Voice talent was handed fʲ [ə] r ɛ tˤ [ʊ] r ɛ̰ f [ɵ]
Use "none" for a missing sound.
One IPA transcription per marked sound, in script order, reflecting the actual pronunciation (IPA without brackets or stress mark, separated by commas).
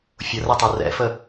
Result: ʊ, u, ə